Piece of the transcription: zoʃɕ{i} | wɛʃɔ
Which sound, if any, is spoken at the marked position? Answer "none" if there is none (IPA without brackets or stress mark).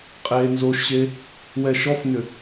e